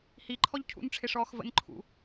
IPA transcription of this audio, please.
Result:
h i ǃʰ ɔ ʎ cʰ ṵ n ʈ͡ʂʰ ɪ ʂ ɔː x v ə̰ n ǃʰ ṵ

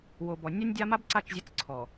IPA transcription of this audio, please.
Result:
w o˨ b ɔ˨ nʲ a˦ nʲ dʲ a˦ m a˦ b ǀ a˦˨ t͡ʃ zʲ ɘ˦ t͡s ǀʰ ɔ˨

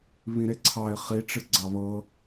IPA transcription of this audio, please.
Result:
β ĩ ɾ e ǀʰ ɑ ɪ̯ χ i ʈ͡ʂ ɨ ɡ͡ǀ ɑ β ɤ

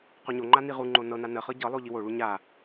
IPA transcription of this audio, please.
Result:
q o ɲ o ŋ͡ǃ a n i ʁ u ŋ͡ǃ o n ɤ n a n ə χ ɤ ɟ ɤ lˠ o ʎ i w o ɭ u ɲ a

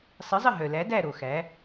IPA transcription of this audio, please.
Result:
sˤ ɨ˨˥ zˤ ə˦˨ ɦ œ˨ l æ˨˥ d æ˦˨ ɾ o˨ x æ˨˥

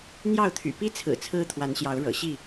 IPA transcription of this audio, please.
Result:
n̪ j ɑ˥˨ ʊ̯ t̪ʰ y̰˨˩ p i˦ t͡sʰ ɹ̩˨˩ t͡sʰ ɹ̩˦ t̪ʰ w a˨˦ n ɕ j ɑ˨˦ ʊ̯ ɻ ɤ̰˨˩ ɕ i˥˨

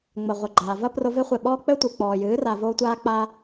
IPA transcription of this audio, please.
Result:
ŋ͡m ɐ˨ ʁʷ ɘ˨ ɡ͡ǃ aː˨ v ɐ˦ p r o˧ v e˦ χʷ e˨ ɓ ɔː˦ k͡p ɘ˦ tʷ ɨ˨ k͡p ɔː˨ j ɨː˨˦ r a˨ v oː˧ tʷ aː˧ k͡p a˧

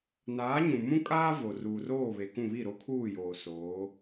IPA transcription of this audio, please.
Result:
n aː˨˦ ɲ ũ˨ m ũ˦ kʼ aː˦ v o˨ r uː˨ r oː˦˨ β e˨ k ũ˦˨ β i˦˨ ɾ o˦ kʰ uː˦˨ j oː˨ s oː˨˦

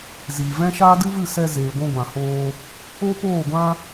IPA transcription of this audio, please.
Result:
z iː˨ v ɛ̃˦ ʃ aː˦ d ɨ˦ v ɨ˦˨ s ɛ˧ z eː˨ ɡʷ ũ˧ ɡʷ ã˨ h oː˧ | o˦ p oː˦˨ ɡʷ ã˦

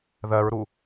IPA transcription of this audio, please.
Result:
ð ɜ ɹ ɾ u

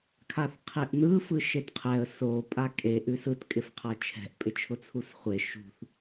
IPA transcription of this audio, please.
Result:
kʰ a θ qʰ e ʔ n̪ ɯ f ɯ ʃ e t qʰ ɛ ə̯ s o pʼ a kʼ e ʔ ʉ s ɯ t kʼ ɪ f qʰ a t͡ʃʰ ɛ̤ ʔ pʼ ɪ t͡ʃʰ ʊ t͡sʰ u s χʷ e ʃ ṳ θ

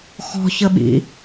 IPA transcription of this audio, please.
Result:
x ɔ̤ ç ə ɓ ḭ

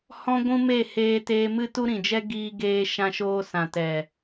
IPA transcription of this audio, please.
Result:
h ɔ̃˦ ɡʷ ũ˦ m e˦˨ h eː˧ t eː˧ m ɨ˦ t u˦ ɾ ĩ˨ d͡ʒ ɛ˦ ɡ iː˧ ɡ eː˧ ʃ ã˧ ʃ oː˧ s ã˨ t ɛ˨

